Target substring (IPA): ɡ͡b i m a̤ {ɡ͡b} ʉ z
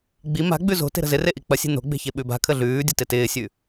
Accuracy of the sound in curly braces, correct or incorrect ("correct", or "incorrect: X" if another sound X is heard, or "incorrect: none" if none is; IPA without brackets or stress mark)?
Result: correct